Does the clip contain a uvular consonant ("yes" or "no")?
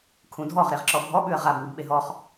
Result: yes